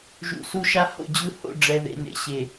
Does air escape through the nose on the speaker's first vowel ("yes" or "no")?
no